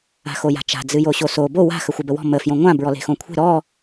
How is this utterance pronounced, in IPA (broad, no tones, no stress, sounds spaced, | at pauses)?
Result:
a̤ x o j a̤ t͡ʃ a̤ d͡z ɨ j o ɕ o s o b o w a̤ x ə xʷ ɨ b ə w ɔ̤ m ə f j õ ŋʷ ã b ɹ ɔ l e̤ x õ kʷʰ e̤ ɾ ɔ